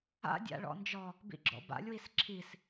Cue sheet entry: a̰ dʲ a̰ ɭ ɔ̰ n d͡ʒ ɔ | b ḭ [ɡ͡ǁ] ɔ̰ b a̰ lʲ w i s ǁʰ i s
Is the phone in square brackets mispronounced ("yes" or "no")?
no